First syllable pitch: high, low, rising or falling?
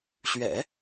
low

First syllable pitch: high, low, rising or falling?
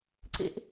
high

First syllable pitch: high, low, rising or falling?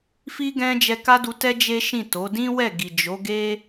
high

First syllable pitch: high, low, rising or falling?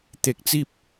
low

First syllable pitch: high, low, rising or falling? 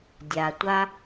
low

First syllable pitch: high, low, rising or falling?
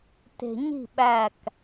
low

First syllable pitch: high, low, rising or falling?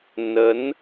rising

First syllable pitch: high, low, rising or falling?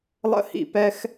high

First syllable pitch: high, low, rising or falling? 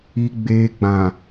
low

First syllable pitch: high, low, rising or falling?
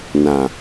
low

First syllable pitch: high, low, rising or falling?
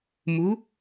rising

